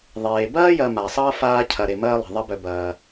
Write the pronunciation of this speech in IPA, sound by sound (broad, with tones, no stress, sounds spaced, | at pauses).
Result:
ðˤ eː˩ b ɐː˥ j ɐ˨ m a˩ sˤ ʌː˥ f aː˦ cʰ ɐ˩ ɾ e˨ m ɐː˥ lˠ i̤˩ ðˤ ɐ˦ b œ˨ b ɐː˨